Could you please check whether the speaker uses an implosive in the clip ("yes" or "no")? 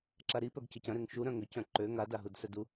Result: no